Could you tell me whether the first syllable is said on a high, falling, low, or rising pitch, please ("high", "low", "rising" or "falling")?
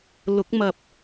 rising